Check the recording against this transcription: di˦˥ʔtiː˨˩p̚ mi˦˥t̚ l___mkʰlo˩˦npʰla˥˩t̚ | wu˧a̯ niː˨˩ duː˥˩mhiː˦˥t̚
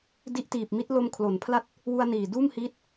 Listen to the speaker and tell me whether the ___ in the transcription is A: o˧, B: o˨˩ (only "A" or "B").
A